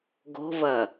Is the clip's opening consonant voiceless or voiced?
voiced